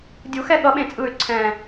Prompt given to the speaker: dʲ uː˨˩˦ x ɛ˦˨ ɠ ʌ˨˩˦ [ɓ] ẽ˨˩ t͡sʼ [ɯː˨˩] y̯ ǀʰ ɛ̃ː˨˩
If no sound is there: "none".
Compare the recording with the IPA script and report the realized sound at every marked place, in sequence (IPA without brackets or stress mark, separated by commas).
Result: ɓ, ɯː˨˩